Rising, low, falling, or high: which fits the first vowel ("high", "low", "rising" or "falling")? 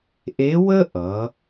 rising